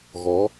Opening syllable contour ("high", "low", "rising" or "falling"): rising